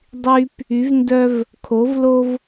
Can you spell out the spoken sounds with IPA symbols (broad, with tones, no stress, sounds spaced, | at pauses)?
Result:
dˤ y˥ p | y˧˥ v n d œ˥ v | kʰ o˧˥ v l o˥ v